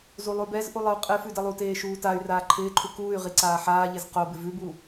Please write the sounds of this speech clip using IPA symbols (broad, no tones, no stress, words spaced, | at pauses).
zulˠʉbɛzʔu lˠɪu̯qʼɪfʉ dɛlˠuteː ʃuːtay̯raː ǃʰɪːǃʰu kuːy̯ ʁiǀaːħaːʎez qobɪ vʉbu